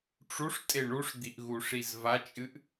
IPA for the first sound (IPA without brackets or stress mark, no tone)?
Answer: ʈ͡ʂ